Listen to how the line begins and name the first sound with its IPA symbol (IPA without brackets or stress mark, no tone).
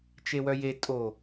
t͡ʃ